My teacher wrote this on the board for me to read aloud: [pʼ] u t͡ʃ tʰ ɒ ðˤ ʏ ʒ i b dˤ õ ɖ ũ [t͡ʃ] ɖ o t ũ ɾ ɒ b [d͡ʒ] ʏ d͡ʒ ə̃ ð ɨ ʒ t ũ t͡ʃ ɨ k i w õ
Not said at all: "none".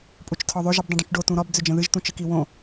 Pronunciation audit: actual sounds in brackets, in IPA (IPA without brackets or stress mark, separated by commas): pʼ, t͡ʃ, d͡z